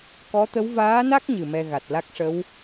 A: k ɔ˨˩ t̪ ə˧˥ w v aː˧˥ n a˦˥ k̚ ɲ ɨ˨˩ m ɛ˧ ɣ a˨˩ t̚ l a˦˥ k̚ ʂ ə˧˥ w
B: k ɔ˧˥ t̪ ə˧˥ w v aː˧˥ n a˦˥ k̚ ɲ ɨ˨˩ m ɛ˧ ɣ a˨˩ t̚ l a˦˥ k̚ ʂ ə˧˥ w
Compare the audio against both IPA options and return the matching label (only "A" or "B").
B